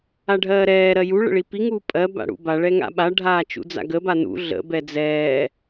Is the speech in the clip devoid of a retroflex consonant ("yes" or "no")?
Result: no